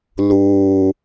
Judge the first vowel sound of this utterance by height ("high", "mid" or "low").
high